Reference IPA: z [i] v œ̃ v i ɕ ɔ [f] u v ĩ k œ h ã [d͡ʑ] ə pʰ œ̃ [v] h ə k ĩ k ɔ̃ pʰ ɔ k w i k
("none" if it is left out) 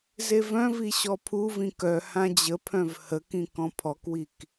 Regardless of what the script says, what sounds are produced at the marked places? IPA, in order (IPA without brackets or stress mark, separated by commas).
e, pʰ, d͡ʑ, v